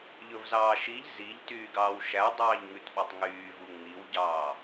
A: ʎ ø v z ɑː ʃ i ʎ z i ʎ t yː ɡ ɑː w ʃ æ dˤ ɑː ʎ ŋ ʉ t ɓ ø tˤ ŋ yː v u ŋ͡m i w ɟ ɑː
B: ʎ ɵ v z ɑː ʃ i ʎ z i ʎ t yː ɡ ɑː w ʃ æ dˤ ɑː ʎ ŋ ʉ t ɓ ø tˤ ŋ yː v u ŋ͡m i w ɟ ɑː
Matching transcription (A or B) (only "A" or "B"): B